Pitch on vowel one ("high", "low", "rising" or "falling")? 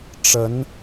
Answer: rising